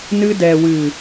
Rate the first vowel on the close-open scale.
close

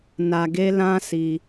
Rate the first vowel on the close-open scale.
open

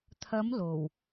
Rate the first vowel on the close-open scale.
open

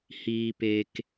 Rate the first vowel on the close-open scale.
close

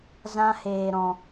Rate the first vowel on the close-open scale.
open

